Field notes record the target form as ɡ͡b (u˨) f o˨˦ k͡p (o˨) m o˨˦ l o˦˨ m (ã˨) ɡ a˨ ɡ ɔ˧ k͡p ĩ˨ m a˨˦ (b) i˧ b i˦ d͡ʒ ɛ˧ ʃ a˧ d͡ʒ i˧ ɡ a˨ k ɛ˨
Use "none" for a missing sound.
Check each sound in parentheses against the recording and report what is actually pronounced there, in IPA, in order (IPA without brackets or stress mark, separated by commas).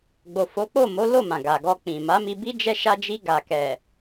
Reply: o˨, o˦˨, ã˨, m